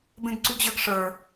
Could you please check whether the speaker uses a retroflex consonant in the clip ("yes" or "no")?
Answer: yes